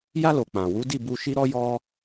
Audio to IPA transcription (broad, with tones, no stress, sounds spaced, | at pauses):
j a˧ l o˨ k͡p ã˨ w u˨˦ d i˦˨ b u˧ ʃ i˦ ɾ ɔ˦ j ɔ˦